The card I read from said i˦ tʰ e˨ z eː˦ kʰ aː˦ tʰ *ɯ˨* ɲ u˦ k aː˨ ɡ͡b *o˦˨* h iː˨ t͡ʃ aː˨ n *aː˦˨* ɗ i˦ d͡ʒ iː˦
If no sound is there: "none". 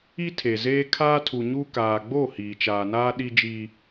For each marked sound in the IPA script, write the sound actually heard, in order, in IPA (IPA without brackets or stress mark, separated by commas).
u˨, o˦˨, aː˦